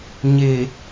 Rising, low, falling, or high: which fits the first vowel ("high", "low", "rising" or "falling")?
low